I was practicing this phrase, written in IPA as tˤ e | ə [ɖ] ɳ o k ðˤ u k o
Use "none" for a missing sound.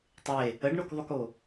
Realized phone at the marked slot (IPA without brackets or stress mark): ɖ